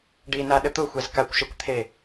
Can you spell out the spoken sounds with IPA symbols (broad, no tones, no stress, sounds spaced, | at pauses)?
ɖ i n a ɗ ə t̪ ʊ xʷ ɛ z k a kʷ ʃ e kʷ t̪ʰ e